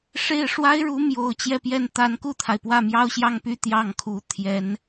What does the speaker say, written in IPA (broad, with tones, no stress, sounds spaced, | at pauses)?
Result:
ʂ e˥˩ ɪ̯ ʂ w a˥ ɪ̯ ɻ u˧˥ m j o˨˩ ʊ̯ t͡ɕ j ɛ˥˧ p j ɛ˥˩ n t̪ a˧˥ n k u˥˩ t̪ʰ a˩ ɪ̯ p w ä˥˩ m j ɑ˥ ʊ̯ ɕ j ɑ˥˩ ŋ p y˥ t̪ j ɑ˥˩ ŋ kʰ u˧˥ t̪ʰ j ɛ˧˥ n